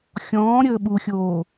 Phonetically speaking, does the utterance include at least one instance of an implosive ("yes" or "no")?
yes